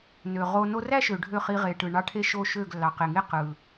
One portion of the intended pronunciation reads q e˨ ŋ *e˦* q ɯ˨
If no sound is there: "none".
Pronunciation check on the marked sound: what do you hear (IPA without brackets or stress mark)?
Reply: e˦